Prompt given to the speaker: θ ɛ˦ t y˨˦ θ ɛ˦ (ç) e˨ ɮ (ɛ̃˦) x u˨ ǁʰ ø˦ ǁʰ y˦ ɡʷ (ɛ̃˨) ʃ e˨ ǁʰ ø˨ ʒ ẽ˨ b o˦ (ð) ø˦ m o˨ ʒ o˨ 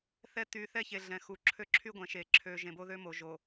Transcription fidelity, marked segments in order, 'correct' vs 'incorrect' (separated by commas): correct, incorrect, correct, correct